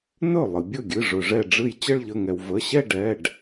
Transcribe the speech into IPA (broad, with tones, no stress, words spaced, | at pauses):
nɵ˥˩ lˠɨ˩bʲɵ˥˩ɡʲɨ˩˧˩ ʐɵ˩ʐɛ˧˩ɖ͡ʐɨ˧˩j t͡ɕə˥˧ɭʎə˩˧˩ŋɛ˩w və˩˧˩ɕɛ˥˧ɖɛ˩˧˩ɖ